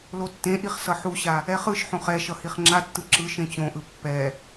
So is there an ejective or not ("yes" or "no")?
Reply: no